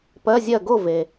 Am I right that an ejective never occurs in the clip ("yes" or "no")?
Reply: yes